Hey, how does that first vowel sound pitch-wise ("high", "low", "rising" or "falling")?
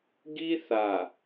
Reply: high